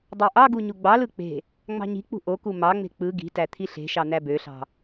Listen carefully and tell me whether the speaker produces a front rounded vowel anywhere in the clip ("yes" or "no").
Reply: yes